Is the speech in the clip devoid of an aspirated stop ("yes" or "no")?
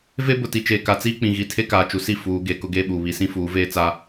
no